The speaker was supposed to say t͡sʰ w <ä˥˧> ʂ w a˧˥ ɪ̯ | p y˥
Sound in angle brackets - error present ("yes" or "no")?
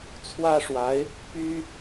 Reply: yes